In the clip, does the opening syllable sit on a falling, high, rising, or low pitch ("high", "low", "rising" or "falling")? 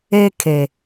high